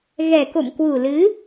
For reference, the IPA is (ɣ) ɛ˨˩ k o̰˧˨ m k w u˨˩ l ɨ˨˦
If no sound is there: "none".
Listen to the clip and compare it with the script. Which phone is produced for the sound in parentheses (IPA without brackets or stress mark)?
ɣ